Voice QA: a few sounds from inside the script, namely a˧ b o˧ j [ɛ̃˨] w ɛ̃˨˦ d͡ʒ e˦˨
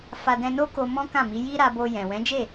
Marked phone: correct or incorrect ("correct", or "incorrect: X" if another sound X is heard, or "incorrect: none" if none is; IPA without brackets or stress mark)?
correct